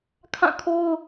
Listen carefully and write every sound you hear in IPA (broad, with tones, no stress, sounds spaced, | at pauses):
kʰ ã˦˨ kʰ o˦ ʊ̯